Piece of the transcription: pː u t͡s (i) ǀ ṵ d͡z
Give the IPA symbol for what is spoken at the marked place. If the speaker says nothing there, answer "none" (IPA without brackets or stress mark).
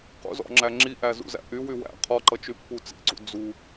ḭ